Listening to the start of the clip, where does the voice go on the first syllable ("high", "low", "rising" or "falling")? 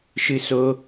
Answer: high